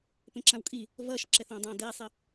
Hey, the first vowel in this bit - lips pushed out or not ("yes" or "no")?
no